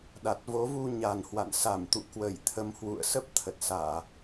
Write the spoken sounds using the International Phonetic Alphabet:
ɗ a˨˩ t̚ v o˨˦ v u˧ ɲ a˨˩ n h w a̰˧˨ n s a˧˩ m t̪ ṵ˧˨ k w ə˧˩ j t̪ʰ ə˨˦ m h w ṵ˧˨ ə̯ s ə˦˥ p̚ t̪ʰ ə˨˩ t̚ s aː˧˩˨

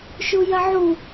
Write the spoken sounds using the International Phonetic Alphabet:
ʃ u j ɐ ʕ u

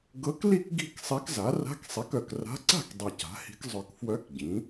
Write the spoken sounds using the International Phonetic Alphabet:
ɡ ɤ˧˥ k l i˥˨ k ɡ i̤˥˨ k sˤ i˧˥ k z a˩˥ r a̤˧˥˧ k sˤ i˩˥ k œ˨˩ k r a̤˧˥ ǀ a̤˥˨ k dˤ i˨˩ c a̤˩˥ h i̤˧˥ k zˤ œ˨˩ k f w œ˧˥ k ɟ ĩ˩˥

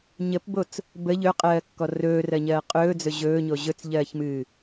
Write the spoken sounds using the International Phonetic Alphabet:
ɲ ə p b o t͡s | b ə ʎ ɵ qʼ ɜː kː ɔ r ɵː r ɜ ɲ ɜː qʼ ɵː d͡z ɵ ʑ ɵː ɲ o ʑ ɵ t͡s ʎ ɜː ç m ɨː

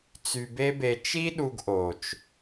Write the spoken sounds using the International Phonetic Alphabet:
t͡s y˧ b e˦ b e˧ t͡ʃ i˦ ɗ u˧ ɡ ʔ o˨ t͡ʃ

